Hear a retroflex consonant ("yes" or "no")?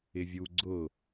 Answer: no